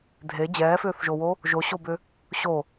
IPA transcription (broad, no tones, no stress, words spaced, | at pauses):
dʱe d͡ʑɛːfʏːθʒowo | ʒoɕobʏ | ɕo